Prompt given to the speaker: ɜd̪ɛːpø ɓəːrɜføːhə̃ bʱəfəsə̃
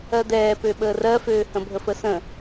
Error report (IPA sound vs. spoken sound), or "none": none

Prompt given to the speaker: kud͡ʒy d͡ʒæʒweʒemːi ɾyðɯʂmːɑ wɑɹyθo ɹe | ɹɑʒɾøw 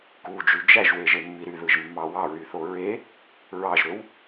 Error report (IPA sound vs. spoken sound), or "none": ʂ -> ʒ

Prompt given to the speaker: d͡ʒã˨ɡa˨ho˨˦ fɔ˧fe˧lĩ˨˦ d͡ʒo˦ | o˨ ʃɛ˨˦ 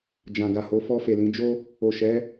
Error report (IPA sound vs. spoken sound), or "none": e˧ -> e˨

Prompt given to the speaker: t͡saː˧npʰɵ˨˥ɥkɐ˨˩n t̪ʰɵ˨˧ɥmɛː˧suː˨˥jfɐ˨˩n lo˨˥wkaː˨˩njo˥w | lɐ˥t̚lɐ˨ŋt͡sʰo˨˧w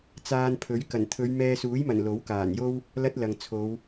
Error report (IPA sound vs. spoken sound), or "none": f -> m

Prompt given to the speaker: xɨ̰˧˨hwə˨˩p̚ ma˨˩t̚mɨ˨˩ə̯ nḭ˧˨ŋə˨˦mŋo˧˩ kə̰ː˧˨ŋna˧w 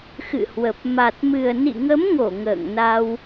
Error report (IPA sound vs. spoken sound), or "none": k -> ŋ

